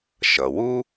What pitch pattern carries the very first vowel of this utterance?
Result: low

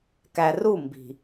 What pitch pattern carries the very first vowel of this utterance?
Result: low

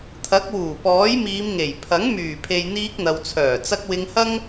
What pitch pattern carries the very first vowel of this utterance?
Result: rising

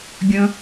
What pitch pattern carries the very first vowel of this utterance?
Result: low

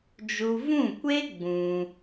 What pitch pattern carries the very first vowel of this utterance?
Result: high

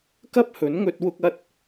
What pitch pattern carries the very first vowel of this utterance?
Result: high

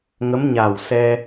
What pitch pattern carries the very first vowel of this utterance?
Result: rising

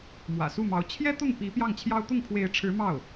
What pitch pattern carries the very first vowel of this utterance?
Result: low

